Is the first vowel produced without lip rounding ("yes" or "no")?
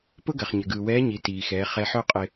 no